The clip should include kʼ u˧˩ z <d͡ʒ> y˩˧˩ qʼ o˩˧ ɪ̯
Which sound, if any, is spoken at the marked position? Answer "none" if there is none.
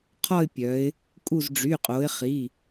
ɖ͡ʐ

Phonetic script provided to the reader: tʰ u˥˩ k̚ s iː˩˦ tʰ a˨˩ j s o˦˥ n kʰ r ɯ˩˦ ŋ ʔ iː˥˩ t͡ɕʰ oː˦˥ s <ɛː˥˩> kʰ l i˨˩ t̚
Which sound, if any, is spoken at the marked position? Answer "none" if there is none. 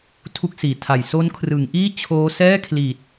ɛː˥˩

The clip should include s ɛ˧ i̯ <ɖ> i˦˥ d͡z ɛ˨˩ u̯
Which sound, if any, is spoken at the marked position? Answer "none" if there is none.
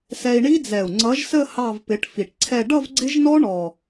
ɳ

